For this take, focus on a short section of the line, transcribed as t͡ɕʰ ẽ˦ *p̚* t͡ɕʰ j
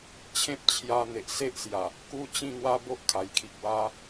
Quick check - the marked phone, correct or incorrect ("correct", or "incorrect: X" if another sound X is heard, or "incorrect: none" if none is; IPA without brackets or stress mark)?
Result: correct